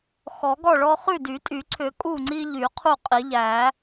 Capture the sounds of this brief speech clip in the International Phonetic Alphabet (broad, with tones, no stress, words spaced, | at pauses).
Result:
xɔ˨˩˦ɡɔ˥˨ɭɔ˦ χʉ˥˨dy˨˩˦tʼy˨˩˦ǀʰʏ˨˩˦ kʼu˥˨ŋ͡ǀi˦ʎy˨˩˦ qʰu˥˨qʼi˨˩˦ʎæ˨˩˦